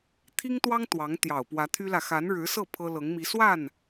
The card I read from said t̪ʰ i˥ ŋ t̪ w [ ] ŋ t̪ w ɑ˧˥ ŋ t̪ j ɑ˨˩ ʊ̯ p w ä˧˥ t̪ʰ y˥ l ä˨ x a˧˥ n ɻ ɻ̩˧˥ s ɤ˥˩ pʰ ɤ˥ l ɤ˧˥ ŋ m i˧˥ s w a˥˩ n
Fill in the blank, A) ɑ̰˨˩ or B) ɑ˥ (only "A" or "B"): B